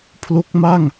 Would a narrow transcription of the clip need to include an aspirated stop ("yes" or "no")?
yes